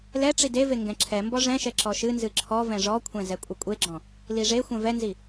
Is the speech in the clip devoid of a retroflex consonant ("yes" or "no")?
no